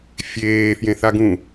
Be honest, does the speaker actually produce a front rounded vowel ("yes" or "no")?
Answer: no